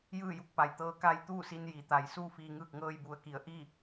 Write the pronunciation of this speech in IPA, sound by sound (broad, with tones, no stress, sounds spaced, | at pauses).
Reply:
j ɯː˥˨ j u˥˨ k̚ p a˩ j t̪ ɤː˧˥ k a˧ j t̪ uː˥˨ s i˧ n j i˩˧ t̪ a˩˧ j s uː˥˨ f iː˧ ŋ ɯː˥˨ k̚ ŋ ɤː˧ j b u˩ ə̯ k i˩˧ ə̯ ʔ iː˥˨